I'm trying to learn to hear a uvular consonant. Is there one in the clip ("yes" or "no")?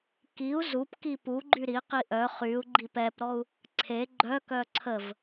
yes